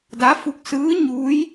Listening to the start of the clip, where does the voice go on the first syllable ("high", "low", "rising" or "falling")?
rising